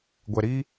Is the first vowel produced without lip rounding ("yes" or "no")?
yes